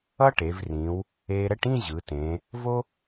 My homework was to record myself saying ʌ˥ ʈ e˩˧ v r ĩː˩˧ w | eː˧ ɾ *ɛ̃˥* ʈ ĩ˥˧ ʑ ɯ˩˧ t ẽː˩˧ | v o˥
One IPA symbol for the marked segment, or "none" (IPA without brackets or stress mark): ɛ˥